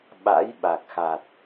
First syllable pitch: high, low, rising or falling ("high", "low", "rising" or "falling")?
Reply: rising